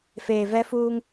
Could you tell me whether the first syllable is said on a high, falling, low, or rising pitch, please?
low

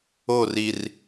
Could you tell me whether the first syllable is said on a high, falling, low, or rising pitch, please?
falling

